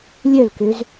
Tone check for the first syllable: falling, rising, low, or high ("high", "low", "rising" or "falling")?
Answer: falling